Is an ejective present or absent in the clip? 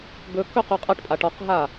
present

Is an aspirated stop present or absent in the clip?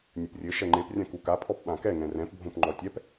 present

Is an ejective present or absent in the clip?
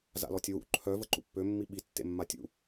absent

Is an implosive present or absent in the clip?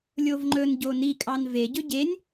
absent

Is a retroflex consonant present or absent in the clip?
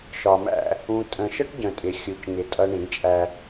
present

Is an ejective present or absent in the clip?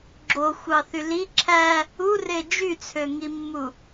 absent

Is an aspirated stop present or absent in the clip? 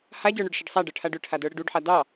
present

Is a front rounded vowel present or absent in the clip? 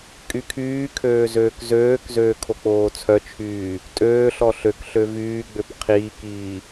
present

